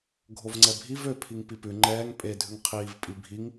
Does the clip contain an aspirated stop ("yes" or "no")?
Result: yes